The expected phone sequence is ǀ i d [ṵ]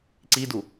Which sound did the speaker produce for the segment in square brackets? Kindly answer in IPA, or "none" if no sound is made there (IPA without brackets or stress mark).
u